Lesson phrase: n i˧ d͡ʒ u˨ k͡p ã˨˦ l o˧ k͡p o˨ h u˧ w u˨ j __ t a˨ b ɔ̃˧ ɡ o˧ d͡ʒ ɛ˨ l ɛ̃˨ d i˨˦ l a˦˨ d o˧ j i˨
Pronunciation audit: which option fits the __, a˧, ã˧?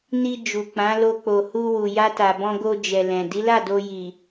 a˧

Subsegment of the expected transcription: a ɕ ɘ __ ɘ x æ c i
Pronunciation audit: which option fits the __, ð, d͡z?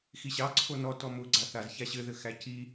ð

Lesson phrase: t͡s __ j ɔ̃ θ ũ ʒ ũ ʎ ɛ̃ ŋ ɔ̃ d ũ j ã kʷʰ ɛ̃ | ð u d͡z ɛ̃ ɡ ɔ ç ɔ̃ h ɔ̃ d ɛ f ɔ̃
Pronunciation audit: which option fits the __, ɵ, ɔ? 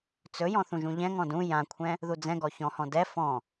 ɵ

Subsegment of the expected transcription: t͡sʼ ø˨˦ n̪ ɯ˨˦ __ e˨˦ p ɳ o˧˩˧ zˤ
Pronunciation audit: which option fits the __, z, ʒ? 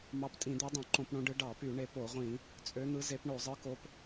z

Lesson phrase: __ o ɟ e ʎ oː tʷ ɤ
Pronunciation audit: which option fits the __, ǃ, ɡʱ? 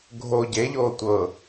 ɡʱ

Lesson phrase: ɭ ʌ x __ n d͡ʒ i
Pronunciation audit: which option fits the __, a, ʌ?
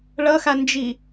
a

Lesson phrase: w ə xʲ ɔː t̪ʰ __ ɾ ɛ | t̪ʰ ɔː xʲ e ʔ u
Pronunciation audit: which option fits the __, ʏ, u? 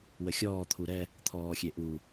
u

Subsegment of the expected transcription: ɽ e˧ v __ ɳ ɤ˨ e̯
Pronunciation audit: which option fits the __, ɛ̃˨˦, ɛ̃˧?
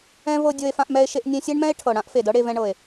ɛ̃˧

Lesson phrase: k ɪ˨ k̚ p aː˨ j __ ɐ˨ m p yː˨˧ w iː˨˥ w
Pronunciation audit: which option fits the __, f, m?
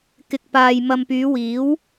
m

